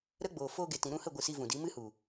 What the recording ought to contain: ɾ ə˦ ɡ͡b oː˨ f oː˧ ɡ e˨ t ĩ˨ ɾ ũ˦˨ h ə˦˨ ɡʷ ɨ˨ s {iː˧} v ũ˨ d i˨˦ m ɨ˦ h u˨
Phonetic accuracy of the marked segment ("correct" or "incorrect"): incorrect